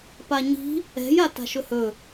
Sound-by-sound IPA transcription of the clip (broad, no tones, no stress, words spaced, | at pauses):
paɲi̤ | ɛ̤j ata̤ʃɵhɵ